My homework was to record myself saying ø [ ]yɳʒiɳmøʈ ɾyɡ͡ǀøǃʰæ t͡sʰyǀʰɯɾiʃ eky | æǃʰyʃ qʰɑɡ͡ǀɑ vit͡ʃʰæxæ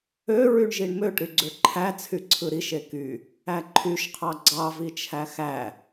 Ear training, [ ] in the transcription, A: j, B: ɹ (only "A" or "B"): B